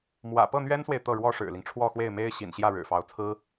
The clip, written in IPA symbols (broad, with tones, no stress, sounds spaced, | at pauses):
m w ä̰˨˩ p ɤ˥˩ n̪ ɥ ɛ˥ n s w e˨ ɪ̯ t̪ ɤ˥˩ ɻ w ɔ˥ ʂ ɻ̩˨˩ l i˦ ŋ ʈ͡ʂʰ w ɔ˥˧ x w e˥˩ ɪ̯ m e˥ ɪ̯ ɕ ḭ˨˩ n ɕ j ä˥˩ ɻ ɻ̩˨˩ f ɑ˧˥ ʊ̯ t͡sʰ ɹ̩˥